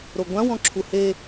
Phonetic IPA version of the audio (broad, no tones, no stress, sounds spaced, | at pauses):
ɾ o ɡʷ ã w ɔ̃ ǁʰ u h e